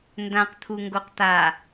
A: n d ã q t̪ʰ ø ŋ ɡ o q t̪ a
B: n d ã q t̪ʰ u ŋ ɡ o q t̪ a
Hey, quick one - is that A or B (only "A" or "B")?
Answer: B